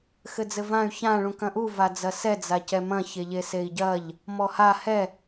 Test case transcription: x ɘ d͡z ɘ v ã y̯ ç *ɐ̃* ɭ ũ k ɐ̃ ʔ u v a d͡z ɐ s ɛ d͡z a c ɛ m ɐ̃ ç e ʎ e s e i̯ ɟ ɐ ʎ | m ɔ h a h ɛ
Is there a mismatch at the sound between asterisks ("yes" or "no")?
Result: yes